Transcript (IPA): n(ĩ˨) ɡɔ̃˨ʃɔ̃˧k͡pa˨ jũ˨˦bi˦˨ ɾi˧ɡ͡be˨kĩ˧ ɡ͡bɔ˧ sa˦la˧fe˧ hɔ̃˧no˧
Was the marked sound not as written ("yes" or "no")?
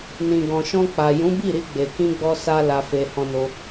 no